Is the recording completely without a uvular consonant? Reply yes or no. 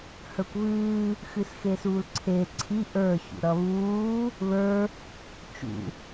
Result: yes